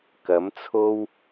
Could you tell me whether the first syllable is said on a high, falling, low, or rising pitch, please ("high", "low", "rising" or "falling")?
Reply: rising